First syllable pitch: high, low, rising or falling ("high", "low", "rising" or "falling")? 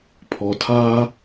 low